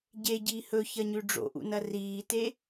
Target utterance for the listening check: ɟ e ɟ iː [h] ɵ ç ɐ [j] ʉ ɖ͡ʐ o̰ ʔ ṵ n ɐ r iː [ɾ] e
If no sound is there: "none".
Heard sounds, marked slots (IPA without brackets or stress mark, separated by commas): h, ɲ, t